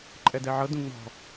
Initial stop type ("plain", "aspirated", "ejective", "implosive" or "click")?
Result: click